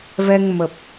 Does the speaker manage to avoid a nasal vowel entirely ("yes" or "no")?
yes